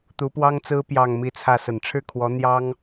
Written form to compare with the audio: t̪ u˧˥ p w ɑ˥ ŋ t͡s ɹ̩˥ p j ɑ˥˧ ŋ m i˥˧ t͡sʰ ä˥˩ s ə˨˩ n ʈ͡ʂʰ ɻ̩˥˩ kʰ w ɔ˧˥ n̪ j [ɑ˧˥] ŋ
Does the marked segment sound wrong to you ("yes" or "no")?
yes